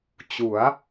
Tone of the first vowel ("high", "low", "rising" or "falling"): rising